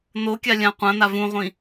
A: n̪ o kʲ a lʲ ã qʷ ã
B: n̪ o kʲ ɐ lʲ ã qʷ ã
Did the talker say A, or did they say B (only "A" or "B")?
A